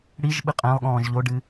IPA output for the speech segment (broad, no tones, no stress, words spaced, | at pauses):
ɽiʒɓɨ qʼɛ̃lˠ ɠɔ̃ːʒʎoɖɨ